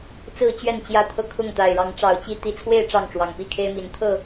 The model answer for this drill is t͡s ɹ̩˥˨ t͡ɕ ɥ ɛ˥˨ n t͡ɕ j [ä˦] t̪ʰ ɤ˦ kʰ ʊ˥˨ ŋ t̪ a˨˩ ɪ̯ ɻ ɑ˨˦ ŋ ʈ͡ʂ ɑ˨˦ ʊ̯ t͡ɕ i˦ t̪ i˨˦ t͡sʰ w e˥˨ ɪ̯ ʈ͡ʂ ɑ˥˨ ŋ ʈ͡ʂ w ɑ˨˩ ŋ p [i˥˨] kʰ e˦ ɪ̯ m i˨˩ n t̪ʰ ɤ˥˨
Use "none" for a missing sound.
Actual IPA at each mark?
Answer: ä˦, i˥˨

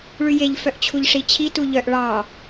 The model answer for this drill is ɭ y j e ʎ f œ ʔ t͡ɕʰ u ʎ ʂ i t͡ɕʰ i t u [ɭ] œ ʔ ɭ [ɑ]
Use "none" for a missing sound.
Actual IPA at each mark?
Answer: ʎ, ɑ

